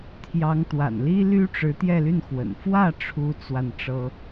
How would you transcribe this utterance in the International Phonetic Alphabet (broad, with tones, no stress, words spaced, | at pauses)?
t̪ʰjɑ˧˥ŋ t̪wa̰˨˩nli˥ly˥ʈ͡ʂɻ̩˧˥ t̪jɛ˥˧ly˥˩nxwə̰˨˩n fwä˥˩ ʈ͡ʂʰu˥t͡swa˥˩n ʈ͡ʂɤ˥